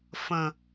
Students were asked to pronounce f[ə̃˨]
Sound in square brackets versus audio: correct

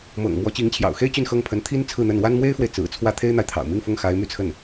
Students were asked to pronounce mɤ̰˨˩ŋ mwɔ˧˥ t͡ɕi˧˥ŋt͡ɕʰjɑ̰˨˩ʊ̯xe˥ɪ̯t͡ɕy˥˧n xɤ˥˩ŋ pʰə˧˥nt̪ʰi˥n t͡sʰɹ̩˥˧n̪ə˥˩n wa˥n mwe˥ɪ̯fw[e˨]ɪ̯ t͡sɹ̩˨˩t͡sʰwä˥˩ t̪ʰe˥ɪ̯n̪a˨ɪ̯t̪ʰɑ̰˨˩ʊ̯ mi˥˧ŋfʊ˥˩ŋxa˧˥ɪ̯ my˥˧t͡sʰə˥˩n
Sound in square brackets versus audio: correct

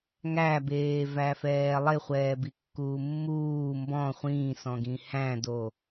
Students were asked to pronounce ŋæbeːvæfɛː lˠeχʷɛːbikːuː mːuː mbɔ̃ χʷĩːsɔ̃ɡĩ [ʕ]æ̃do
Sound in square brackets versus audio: incorrect: h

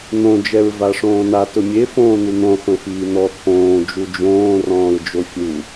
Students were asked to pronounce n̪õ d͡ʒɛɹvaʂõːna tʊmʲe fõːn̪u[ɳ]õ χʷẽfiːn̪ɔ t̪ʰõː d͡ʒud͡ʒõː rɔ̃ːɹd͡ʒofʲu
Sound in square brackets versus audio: incorrect: n̪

